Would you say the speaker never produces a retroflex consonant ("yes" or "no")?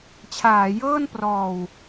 yes